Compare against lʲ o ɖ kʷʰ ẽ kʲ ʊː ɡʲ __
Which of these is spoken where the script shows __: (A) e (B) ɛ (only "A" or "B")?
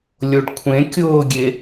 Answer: A